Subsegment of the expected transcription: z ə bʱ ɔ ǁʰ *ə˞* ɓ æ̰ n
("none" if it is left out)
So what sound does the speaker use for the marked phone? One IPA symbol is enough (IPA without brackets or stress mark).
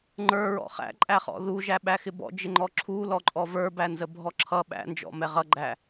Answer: ʌ